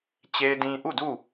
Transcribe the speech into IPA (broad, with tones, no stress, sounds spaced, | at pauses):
t͡ɕ e˦ ɪ̯ d ĩ˦ ʔ u˦˨ d u˦˨